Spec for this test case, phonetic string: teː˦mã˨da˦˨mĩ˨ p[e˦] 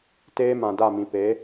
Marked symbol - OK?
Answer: no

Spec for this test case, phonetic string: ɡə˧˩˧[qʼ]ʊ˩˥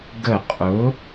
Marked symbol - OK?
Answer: yes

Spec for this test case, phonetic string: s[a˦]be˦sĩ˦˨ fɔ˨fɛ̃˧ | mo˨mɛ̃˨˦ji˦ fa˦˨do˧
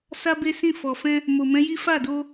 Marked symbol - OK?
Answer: yes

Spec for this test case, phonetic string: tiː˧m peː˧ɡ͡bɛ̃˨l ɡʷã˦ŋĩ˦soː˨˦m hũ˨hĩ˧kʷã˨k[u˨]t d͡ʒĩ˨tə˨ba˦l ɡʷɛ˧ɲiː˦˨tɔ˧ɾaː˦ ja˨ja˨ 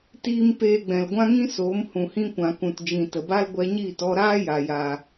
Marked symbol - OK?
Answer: no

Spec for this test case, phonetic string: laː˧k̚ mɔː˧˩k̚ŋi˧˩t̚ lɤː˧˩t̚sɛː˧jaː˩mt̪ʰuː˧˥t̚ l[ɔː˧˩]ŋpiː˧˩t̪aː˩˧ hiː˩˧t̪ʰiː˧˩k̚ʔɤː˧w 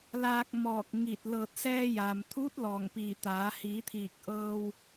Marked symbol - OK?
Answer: yes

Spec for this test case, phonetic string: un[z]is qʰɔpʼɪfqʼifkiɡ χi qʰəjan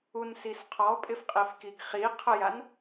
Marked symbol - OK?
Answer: no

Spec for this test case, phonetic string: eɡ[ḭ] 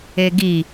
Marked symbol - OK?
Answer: no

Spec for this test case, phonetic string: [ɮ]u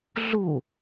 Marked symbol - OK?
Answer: yes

